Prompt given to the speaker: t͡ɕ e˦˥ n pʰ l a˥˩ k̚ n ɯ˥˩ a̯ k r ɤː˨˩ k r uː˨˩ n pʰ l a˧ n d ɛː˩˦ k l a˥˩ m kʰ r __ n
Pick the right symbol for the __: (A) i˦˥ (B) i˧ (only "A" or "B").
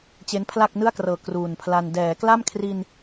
B